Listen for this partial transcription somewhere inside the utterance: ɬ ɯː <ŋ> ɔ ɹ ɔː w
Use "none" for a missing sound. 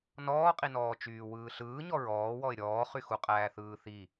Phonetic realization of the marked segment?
ɲ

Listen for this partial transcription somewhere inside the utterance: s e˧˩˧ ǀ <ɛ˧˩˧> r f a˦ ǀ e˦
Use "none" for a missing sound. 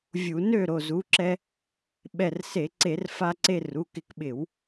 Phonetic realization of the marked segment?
e˧˩˧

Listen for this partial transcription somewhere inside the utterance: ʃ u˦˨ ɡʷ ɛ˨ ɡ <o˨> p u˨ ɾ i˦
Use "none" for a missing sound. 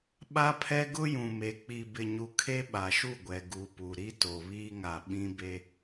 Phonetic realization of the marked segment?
u˨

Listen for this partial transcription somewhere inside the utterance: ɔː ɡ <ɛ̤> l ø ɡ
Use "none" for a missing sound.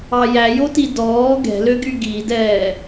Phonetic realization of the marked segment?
ɛ̤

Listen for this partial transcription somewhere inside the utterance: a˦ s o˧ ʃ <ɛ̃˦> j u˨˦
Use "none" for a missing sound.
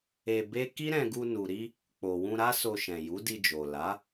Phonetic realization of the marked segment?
ɛ̃˨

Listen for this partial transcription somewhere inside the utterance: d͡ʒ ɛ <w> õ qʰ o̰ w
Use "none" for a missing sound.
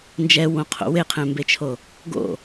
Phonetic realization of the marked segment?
w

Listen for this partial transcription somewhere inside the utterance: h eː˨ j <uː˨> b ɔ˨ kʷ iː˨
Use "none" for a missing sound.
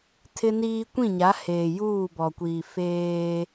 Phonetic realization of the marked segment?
uː˦˨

